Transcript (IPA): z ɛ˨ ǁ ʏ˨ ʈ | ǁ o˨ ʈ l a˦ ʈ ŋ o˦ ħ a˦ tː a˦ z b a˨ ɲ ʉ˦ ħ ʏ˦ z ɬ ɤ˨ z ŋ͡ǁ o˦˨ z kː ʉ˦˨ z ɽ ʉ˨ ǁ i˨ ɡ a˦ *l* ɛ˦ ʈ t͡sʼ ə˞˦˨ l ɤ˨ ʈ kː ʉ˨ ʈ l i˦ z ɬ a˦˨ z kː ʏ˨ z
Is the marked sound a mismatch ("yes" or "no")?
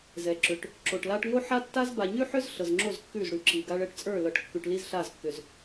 yes